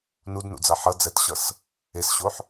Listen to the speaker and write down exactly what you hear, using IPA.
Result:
nudnṵd͡za ħʌd͡zɛtɕʌs | esɕoħ

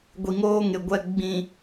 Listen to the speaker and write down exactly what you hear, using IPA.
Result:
ɡʷi˨ŋoː˦ŋɪ˨ ɡʷɛ˨ ɡ͡bĩ˨

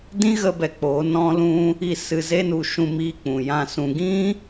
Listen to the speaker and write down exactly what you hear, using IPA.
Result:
dĩ˦ɣə˧bɛ˨ k͡po˨˦nɔ̃˦lũ˦ | i˧ sɨ˧ze˦nu˧ ʃũ˧miː˧ k͡pũ˨jã˧sũ˧ ɡĩ˦

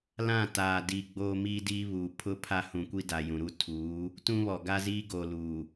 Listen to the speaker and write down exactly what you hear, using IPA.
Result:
lã˦˨taː˨ di˨ ɡ͡boː˦miː˦diː˦βuː˨ pʰʊ˦ pʰa˦hũ˨kʷi˦da˨ jũ˨ɾu˦tʰuː˨˦ | tũ˦βɔ˨ ɡa˦ziː˦ ɡoː˨luː˨

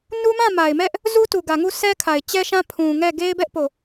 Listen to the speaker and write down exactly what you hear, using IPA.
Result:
nu˦mã˦˨ma˨ɪ̯mɛ˦ʔ | zu˦tu˨ɡä˨ŋu˦˨ sɛ˦kʰa˨ɪ̯t͡ɕɛ˦ʃã˦ pʰũ˨ŋɛ˦˨ ɡe˦ɪ̯bɛ˦ʔ po˦˨

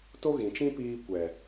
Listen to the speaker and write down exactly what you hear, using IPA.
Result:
to˦ɣĩ˨t͡ʃĩ˦piː˧ kʷɛ˨

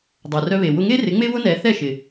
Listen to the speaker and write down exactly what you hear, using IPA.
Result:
dˤœ˩rœ˧βe˩ wʊ˧ŋe˥rɪ˩˥ ŋ͡me˥βʊ˥nɛ˩˥ θɛ˥˩ʃɪ˩

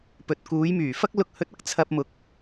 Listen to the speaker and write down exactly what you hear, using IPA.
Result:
pɵ˨t̚kuː˨˥jmyː˨˩ fɐ˥k̚lʊ˧k̚ hɵ˧t̚ɐ˥k̚ t͡sʰɐ˧p̚mʊ˨˥k̚

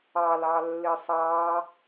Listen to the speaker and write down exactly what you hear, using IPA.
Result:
ɑl ɑlːɪsˤɑ

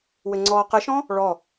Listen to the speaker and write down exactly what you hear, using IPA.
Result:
wɘŋ͡ǀɔːqəʃɔ̃ | ɭɔ

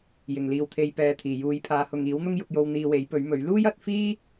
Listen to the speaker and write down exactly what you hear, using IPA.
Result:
jɪ˨˩ŋliː˨wt̪ʰe˧j pɛː˨t̪ʰiː˨˩ juː˨˧jpʰaː˨˧hʊ˨ŋ iː˨˥wn̪ʊ˥ŋjʊ˧k̚jo˧w n̪iː˧we˨˥jpɵ˨˥ɥmɵ˨˥ɥ luː˥jɐ˨˥t̚fiː˥

